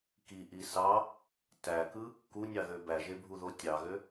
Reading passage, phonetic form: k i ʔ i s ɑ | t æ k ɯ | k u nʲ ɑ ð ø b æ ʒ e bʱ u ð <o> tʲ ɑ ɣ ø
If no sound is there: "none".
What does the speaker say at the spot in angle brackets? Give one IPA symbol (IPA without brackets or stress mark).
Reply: o